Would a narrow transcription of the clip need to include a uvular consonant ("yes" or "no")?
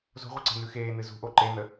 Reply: yes